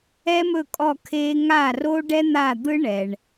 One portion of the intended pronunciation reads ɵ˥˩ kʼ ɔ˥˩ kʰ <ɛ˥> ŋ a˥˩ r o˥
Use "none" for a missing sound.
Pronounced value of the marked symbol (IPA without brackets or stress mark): e˥